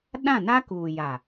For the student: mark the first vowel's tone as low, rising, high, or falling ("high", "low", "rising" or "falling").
falling